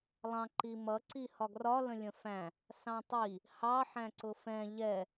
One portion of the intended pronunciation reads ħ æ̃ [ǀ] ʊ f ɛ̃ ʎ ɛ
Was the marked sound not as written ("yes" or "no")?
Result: no